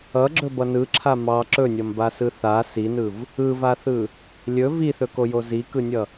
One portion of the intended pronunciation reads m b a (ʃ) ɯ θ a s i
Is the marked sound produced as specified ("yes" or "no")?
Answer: no